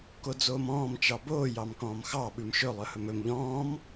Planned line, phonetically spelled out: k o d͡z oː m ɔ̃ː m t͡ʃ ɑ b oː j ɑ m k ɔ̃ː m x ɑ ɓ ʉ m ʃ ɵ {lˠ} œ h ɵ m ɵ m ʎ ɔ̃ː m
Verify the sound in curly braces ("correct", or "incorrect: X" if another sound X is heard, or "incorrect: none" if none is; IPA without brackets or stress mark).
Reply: correct